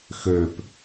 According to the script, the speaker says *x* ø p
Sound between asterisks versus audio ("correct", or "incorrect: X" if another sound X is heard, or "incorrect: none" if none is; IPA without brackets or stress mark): correct